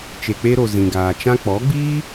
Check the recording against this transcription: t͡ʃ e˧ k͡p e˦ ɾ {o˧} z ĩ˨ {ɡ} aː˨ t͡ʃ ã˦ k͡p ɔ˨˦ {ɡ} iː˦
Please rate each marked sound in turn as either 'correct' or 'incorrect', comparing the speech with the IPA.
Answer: correct, correct, incorrect: ɡ͡b

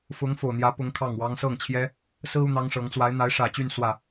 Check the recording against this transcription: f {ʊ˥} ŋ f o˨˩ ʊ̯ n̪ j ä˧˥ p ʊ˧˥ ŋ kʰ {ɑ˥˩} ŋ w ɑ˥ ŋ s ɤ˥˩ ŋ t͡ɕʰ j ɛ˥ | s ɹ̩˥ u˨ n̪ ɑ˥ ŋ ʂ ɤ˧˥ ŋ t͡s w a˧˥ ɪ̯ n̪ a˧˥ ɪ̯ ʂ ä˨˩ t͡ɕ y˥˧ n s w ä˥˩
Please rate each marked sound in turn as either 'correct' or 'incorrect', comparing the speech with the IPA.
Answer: incorrect: ʊ˧˥, correct

